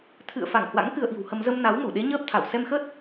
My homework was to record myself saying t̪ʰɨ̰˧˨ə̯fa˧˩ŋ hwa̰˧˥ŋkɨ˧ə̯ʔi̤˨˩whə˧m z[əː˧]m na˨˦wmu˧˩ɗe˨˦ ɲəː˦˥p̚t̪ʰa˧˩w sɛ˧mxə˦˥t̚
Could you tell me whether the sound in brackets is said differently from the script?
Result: yes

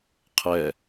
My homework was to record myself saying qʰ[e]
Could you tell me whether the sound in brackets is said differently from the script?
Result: yes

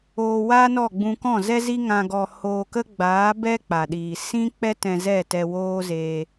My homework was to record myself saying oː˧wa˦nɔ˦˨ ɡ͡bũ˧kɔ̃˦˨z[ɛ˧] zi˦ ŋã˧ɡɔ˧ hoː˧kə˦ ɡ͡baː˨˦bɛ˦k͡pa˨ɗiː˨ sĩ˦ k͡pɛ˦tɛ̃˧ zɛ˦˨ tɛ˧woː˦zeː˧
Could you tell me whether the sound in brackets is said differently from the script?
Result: yes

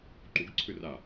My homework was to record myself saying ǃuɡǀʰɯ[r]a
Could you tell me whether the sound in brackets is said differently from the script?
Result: no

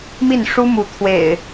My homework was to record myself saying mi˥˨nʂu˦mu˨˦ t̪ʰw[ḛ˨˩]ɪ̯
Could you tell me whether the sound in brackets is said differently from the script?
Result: no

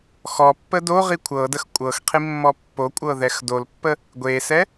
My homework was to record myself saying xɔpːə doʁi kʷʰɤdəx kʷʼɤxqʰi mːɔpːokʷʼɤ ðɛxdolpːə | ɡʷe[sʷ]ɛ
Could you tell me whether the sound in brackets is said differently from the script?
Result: yes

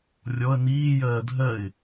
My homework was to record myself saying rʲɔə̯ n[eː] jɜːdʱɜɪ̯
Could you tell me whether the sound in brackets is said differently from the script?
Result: yes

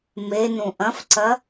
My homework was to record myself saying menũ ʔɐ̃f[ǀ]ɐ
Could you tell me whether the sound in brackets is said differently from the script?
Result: no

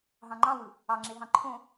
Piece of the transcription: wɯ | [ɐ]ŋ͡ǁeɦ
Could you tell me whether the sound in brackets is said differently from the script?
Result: yes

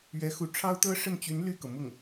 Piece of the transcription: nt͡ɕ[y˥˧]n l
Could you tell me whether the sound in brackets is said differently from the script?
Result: yes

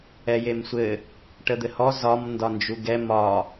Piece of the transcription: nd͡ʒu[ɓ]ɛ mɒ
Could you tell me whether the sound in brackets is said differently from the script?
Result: yes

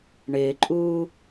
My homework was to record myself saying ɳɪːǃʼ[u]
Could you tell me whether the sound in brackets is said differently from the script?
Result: yes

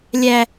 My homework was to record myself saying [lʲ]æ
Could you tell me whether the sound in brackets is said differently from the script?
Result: no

